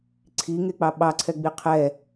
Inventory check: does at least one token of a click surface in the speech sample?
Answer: yes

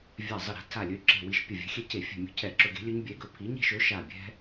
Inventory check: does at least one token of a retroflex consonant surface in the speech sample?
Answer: no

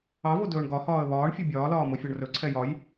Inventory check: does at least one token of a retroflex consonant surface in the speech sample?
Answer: yes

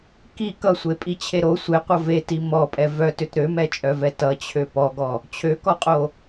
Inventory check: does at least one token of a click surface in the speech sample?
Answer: no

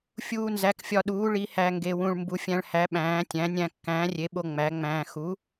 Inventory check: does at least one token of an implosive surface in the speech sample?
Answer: yes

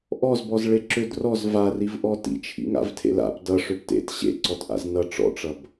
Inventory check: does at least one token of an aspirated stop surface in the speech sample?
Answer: yes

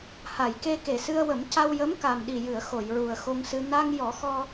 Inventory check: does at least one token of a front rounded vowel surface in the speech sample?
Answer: no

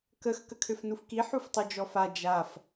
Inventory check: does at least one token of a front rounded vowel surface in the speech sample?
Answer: yes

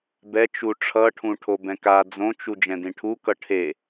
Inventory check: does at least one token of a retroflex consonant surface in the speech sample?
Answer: yes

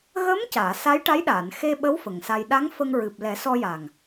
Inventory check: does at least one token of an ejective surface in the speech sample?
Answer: no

